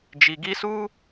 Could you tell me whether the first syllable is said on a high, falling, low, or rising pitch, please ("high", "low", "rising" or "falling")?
low